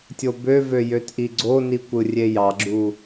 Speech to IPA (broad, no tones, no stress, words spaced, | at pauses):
tʲobøvø jøtʔiɡ͡ǀoni kʷɯrʲejɑɡ͡ǁu